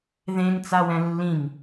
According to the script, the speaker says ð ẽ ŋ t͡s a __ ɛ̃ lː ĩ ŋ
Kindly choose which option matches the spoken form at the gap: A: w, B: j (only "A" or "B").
A